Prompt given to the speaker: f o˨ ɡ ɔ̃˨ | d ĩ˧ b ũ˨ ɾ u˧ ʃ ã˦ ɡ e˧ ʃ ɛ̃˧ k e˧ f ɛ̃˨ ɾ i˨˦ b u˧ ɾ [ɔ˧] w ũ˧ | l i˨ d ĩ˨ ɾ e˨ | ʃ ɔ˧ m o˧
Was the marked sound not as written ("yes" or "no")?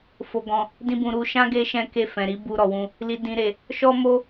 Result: yes